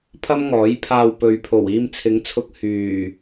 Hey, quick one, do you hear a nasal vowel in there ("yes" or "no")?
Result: no